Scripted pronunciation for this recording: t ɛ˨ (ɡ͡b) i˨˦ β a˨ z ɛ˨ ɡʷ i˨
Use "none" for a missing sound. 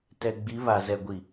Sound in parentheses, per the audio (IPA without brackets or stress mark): ɡ͡b